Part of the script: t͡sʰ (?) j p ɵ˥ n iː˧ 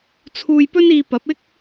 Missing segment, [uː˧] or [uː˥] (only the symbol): uː˧